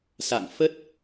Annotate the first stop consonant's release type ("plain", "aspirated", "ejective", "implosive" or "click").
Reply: plain